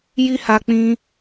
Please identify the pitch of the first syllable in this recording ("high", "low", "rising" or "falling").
high